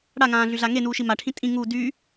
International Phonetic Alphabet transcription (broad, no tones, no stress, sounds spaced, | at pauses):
ɽ a ŋ ãː ɮ y ɮ a ŋ e n uː ʃ i m a ʈʰ ĩ tʼ ĩ ŋ uː d y